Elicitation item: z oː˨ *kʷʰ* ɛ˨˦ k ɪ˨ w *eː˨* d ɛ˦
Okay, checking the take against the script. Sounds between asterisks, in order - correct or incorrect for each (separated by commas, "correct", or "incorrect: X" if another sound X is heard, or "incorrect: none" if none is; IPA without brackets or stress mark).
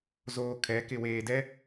incorrect: kʰ, correct